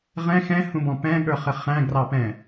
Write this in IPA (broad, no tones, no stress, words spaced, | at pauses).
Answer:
ʁɛ̃ xɛ̃hũbɔ̃ pɛ̃ɠə˞χɪ χæ̃ɡrɑpɛ̃